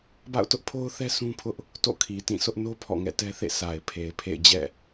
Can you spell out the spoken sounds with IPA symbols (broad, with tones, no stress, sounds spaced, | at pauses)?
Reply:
b a̰˦˨ ʊ̯ t ʊ˦ ʔ pʰ o˦ ʊ̯ θ ɛ˦ sʰ ũ˦ pʰ ʊ˦ ʔ | t o̰˦˨ kʰ i˨ t ĩ˦˨ sʰ ʊ˦ ʔ n o˦ pʰ ɔ̰˦˨ ŋ ɛ̰˦˨ t ɛ˦ θ ḛ˦˨ s a˨ ɪ̯ pʰ e˨ ɪ̯ pʰ ḛ˦˨ ɪ̯ d͡ʑ ɛ̰˦˨